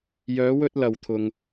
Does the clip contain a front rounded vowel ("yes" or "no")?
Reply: yes